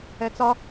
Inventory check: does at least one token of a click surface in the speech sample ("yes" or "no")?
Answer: no